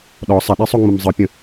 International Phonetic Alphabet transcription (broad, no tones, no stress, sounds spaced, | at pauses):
ɗ ɔ sˤ ɛ ɗ e sˤ o ŋ͡m ə m zˤ ɯ pʲ ə̃